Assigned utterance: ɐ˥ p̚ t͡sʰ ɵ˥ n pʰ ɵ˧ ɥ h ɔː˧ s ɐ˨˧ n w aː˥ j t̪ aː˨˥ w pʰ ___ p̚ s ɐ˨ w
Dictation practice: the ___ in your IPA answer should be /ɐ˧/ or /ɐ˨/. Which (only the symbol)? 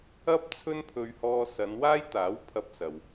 ɐ˧